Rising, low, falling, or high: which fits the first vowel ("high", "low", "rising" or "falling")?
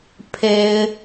high